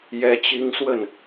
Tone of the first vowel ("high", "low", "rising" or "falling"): high